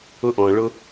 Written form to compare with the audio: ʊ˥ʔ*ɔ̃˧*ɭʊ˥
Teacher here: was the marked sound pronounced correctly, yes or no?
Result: yes